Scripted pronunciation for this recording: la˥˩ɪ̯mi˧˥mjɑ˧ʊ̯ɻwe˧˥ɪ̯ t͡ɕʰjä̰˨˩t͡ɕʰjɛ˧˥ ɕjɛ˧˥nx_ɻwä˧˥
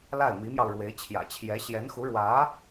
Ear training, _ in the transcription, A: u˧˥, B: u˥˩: A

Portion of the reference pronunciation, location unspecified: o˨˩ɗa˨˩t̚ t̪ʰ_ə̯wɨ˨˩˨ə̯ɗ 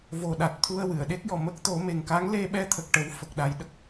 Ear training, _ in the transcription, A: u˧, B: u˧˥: A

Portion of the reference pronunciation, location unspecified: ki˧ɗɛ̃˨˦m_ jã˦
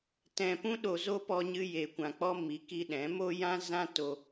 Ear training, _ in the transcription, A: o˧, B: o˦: B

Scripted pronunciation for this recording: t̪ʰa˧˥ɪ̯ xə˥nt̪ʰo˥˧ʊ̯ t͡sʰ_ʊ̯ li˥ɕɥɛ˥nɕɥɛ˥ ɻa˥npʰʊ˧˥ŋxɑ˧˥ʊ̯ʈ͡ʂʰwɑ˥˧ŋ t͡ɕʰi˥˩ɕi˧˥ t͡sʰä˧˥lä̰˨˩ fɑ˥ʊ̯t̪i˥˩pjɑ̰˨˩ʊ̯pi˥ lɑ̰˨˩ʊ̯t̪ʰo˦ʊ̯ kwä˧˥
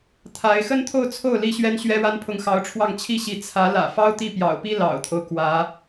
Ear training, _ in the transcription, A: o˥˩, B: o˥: A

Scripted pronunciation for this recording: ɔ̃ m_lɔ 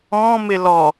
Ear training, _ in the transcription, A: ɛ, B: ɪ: B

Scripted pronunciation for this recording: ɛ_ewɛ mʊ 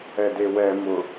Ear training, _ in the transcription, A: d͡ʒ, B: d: B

